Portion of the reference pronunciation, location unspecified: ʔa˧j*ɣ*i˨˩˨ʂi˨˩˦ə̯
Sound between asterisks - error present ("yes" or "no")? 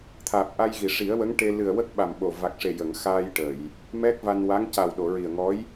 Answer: no